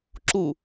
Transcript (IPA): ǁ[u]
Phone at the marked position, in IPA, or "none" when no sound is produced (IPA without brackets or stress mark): u